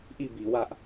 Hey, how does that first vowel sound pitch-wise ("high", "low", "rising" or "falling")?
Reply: falling